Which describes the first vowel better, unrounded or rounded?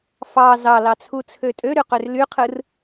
unrounded